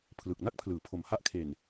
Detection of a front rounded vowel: absent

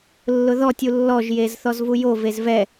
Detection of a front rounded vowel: absent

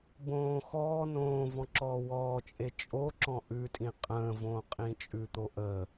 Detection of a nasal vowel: present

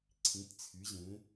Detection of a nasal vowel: present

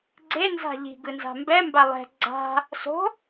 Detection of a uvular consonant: absent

